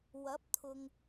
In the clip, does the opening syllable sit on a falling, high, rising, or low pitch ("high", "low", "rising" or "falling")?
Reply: rising